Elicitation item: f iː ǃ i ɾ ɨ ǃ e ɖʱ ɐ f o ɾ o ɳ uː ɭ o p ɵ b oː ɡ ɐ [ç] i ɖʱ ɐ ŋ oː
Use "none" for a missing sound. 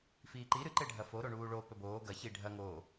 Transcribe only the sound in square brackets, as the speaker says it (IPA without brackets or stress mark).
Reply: ç